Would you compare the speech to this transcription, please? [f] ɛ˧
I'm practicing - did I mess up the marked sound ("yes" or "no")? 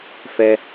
no